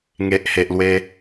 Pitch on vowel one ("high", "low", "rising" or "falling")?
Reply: low